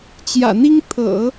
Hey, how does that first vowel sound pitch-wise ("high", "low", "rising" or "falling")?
low